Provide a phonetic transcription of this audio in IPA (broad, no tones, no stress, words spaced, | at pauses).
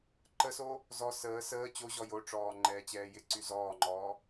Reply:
ǃəso | zɔ səː səː t͡ɕoʑɔ joʈ͡ʂɔː ŋ͡ǃɛːt͡ɕɛːjɪǀy zɔːŋ͡ǃɔː